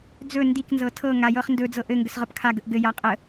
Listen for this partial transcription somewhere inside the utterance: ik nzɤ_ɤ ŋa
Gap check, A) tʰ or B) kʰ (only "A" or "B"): A